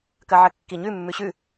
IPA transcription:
k ɐ ʕ ɐ kː i ɲ ʉ mː ʉ ɕ ʉ

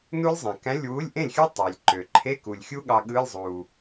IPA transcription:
n u˦˥ lʲ zˤ ẽ˨˩ k æ̃˧˥˧ lʲ w u˧˥˧ lʲ ʔ ẽ˥˩ lʲ xʲ ɯ˦˥ tˤ e˨˩ lʲ ǃ ø˨˩ ǃʰ e˧˥˧ k u˨˩ lʲ xʲ u˦˥ ɠ ɑ˦˥ ɠ ɯ˧˥˧ lʲ zˤ u˨˩

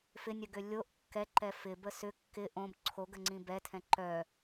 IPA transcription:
f ɪ nʲ œ ɡ ʏ lʲ o ʔ kː ɛ ǃ ɛ f ɪ b ə s ʏ kː ɪ ʔ õ b ǀʰ o ɡ ə ŋ͡ǀ ĩ b ɛ tʰ ɛ̃ ǃ œ

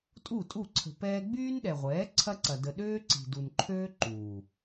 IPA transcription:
tʼ u˦˨ tʼ u˦˨ ǀʰ ə̤˨ p ɛː˧ ɡ͡b yː˦ n ɗ ɛ˨ ʁʷ ɛː˨˦ ǀʰ ɐ˦ ǀ ɐ˨ d ə˧ ɗ øː˦ ǀ i̤˨ d u˨ n ǃʰ øː˦ ǃ uː˨

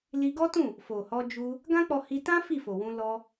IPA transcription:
l i˧ ɡ ɔ˦ t ũ˦˨ | f o˨ h ɔ˧ d͡ʒ u˧ | ɡ ã˦ k͡p ɔ˧ h i˧ t ã˦ f i˦˨ f o˨ w ũ˧ l ɔ˧

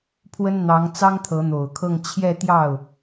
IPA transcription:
pʰ w ə˥ n n̪ ɑ˧˥ ŋ t͡s ɑ˥ ŋ t̪ʰ ɤ˧˥ n̪ o˨˩ ʊ̯ kʰ ɤ˥˧ ŋ t͡ɕʰ j ɛ˥˧ t̪ j ɑ˥˩ ʊ̯

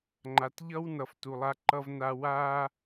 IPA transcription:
ŋ͡ǃ a˨ t ʎ ʌ˦ w n ʌ˨ f t u˨ lˠ a˦ ǃ ʌ˦ v n a˦ w a˦

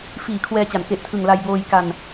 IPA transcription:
f iː˨˩ kʰ w ɛː˧ t͡ɕ a˩˦ n k e˨˩ ʔ tʰ ɯ˨˩ ŋ l a˧ j b oː˧ j k a˧ n

